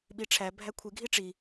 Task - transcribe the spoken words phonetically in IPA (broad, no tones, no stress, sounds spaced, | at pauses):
ɓ i ʈ͡ʂʰ æ bʱ æ kʷʰ i ɡʱ i ʈ͡ʂ i